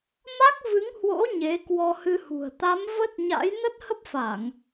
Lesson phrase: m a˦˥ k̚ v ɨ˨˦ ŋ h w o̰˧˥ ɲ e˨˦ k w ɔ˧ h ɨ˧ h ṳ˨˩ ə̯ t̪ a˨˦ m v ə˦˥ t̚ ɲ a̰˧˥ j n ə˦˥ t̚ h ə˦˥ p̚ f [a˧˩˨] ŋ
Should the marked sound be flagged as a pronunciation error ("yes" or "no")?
no